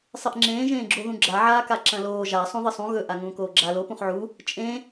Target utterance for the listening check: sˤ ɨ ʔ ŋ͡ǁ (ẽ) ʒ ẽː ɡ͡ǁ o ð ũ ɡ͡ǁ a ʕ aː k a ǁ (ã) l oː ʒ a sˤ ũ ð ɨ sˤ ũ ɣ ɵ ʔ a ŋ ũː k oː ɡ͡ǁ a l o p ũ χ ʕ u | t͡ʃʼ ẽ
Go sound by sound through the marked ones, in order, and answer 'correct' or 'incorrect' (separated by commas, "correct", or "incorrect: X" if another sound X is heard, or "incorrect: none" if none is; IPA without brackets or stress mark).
incorrect: ẽː, incorrect: ɐ̃